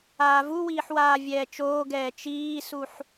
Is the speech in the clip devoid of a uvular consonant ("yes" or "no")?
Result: yes